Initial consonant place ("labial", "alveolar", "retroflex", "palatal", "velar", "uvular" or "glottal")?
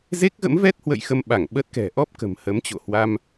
alveolar